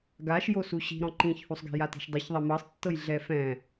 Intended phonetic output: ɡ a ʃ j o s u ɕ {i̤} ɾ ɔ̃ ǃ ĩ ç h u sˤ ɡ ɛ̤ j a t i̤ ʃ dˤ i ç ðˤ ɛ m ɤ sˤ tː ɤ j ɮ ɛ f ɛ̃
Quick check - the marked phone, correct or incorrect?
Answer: correct